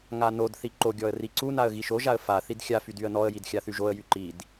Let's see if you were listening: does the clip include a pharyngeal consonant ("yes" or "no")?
no